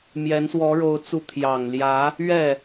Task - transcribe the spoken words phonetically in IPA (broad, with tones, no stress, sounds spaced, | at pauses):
m j ɛ˧˥ n s w ɔ˧˥ ɻ o˧˥ ʊ̯ t͡s u˧˥ t̪ʰ j ɑ˨˩ ŋ l j ä˧˥ | ɥ ɛ˥˩